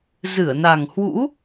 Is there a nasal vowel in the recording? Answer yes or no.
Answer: no